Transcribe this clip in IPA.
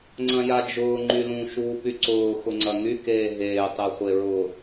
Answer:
ŋ͡ǀ ɐ̃ j a d͡ʒ ʊː ŋ͡ǃ y l ũ ʃ uː p y ǀ ʊː x ʊ ŋ͡ǀ ɐ ŋ y k eː ɦ eː tˤ e χʷ e ɹ ʊ

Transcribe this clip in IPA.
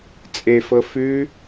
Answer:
t͡sʼ e f ɤ f ʉ

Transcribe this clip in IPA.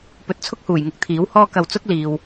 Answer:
p ɵ˨˥ t̚ t͡sʰ ʊ˥ k̚ h uː˨˩ j ŋ ɪ˨ k̚ t̪ʰ iː˨˥ w h ɔː˥ k ɐ˧ w t͡s ʊ˥ k̚ l iː˨ w

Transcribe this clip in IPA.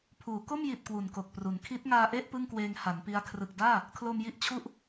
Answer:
pʰ uː˩˦ k o˥˩ m j i˨˩ t̚ k w u˨˩ n k o˨˩ k̚ p r u˩˦ n kʰ i˦˥ t̚ ŋ aː˧ ʔ e˥˩ ʔ p ɯ˥˩ ŋ k w eː˧ ŋ h a˩˦ n p i˧ a̯ kʰ r ɯ˨˩ k̚ d aː˥˩ | kʰ l o˧ m j i˥˩ ʔ t͡ɕʰ u˥˩ ʔ

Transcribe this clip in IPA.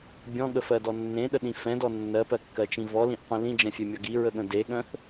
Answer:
bʲ ɔ̃ ɠ ə f ɜ d ɔ nː ẽ ɗ ə ɗ ĩ f ɛ̃ d ɔ nː ɜ p ɜ kː ɜ t͡ʃ ĩ v ɔ l ĩ ʔ qʷ ĩ l ĩ d͡ʒ ɛ̃ fʲ e mʲ ʌ ɡ i ɹ ə ɠ ə̃ d e ɠ œ̃ θ

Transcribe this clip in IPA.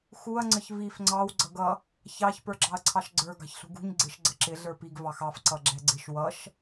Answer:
x u ɐ̯ ŋ͡ǀ ə ç v i f ŋ͡ǀ ɑ w ɡ͡ǀ ʌ ɡ ʌ | ç ɑ ç p ə˞ ɡ͡ǁ ɑ ɐ̯ ǀʰ ɑ ʃ ɡ͡ǀ ə˞ ɡ ɑ̤ ç ɬ ṳ ɡ ṳ ɲ ɡ͡ǀ ɪ ʃ ɡ͡ǀ ə ǁ ɪ ɮ ə˞ p i ɡ v ɑ x ɑ f ǀ ʌ ɡ͡ǁ ɛ ɡ͡ǀ ɪ ʃ w ʌ ʃ

